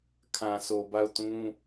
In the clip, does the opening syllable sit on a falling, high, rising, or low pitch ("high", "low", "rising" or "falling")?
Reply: low